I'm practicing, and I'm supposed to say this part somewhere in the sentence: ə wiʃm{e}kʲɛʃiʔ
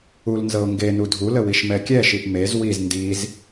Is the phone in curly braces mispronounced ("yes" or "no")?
yes